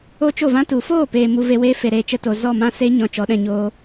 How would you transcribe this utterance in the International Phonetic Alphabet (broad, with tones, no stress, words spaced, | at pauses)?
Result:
o˦t͡ʃo˦˨vã˦ tu˨foː˦˨peː˨ mu˧ve˧weː˦ fe˨ ɾeː˧t͡ʃə˧to˨ zɔ˦˨mã˦se˦ ɲɔ̃˨ t͡ʃɔ˨˦ɗɛ̃˧ɲoː˦